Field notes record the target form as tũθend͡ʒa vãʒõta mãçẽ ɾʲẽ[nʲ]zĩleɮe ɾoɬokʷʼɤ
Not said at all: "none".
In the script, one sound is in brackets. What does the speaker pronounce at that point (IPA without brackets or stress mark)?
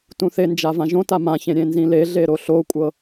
n